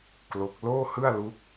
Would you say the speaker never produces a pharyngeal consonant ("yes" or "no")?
yes